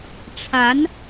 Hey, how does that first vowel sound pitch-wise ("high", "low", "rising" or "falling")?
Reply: rising